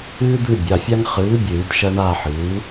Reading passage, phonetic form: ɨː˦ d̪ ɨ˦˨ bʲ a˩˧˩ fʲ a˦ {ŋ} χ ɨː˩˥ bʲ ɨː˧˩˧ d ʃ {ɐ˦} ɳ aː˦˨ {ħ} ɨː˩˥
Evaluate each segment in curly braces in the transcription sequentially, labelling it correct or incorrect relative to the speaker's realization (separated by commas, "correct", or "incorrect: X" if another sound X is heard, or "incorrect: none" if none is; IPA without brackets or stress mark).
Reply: correct, correct, correct